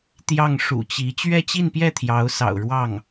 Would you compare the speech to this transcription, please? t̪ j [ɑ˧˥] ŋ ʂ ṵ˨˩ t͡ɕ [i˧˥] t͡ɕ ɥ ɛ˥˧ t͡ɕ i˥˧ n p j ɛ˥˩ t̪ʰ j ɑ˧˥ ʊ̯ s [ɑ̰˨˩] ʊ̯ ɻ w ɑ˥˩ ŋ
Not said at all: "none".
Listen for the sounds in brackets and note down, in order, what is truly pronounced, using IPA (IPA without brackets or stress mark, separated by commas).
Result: ɑ˥˩, i˧˥, ɑ̰˨˩